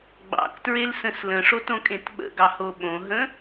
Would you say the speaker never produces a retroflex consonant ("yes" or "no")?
no